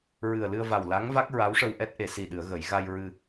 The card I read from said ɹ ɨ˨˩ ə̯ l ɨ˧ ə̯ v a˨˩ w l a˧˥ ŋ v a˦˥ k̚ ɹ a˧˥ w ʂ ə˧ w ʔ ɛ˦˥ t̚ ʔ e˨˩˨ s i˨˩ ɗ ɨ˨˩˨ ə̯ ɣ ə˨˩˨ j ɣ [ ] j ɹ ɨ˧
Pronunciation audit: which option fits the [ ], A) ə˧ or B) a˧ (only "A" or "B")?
B